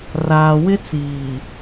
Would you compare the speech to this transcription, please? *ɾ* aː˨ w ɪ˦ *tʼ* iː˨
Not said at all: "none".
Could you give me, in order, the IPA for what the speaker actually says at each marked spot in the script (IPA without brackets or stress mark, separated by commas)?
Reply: r, t͡s